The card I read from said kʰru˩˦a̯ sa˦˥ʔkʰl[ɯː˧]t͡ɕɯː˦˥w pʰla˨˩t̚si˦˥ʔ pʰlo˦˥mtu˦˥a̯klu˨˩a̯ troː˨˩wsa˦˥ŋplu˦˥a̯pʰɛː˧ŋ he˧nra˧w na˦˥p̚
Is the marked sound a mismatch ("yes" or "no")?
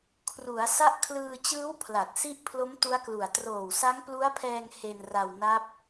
no